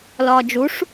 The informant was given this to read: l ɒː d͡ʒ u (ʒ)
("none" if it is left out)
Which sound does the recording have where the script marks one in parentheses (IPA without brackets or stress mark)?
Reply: ʂ